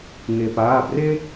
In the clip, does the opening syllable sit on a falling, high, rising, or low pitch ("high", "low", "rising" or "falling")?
low